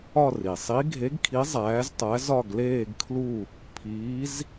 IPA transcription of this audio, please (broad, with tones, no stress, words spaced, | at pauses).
ɒ˥˧ri˩ sˤi˧˥ ɡʱe˧˥ɡkʰi˧˥ zˤæː˧˥ztˤæ˧˥ zɒ˥˧ɡleː˥˧ɡkʰlu˥˧ | pʰiː˧˥z